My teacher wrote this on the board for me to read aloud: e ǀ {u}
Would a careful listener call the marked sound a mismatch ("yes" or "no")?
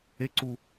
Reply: no